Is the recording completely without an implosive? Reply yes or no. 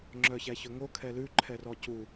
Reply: yes